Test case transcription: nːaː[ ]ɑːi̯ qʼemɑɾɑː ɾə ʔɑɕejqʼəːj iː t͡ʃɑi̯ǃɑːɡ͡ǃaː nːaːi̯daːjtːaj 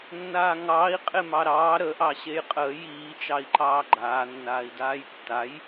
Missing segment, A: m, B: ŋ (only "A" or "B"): B